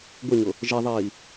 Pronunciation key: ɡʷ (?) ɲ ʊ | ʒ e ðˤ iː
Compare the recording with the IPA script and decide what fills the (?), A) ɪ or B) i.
A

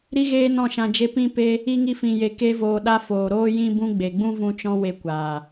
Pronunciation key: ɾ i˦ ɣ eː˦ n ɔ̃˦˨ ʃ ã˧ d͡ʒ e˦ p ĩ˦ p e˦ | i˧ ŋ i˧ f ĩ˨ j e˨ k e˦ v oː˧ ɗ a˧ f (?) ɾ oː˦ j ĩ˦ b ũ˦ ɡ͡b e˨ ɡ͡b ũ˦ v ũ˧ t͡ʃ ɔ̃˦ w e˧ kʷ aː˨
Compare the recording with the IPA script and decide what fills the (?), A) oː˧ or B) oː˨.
B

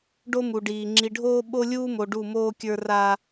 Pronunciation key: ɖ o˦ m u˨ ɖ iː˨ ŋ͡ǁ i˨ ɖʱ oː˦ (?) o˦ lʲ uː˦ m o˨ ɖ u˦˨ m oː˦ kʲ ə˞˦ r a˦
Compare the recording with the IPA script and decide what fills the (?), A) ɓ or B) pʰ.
A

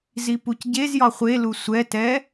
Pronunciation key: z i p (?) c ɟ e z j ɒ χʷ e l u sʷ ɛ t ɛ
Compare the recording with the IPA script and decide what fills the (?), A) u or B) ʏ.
A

